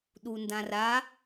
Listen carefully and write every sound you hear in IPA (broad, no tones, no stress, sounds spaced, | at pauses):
ɗ u n d ã r a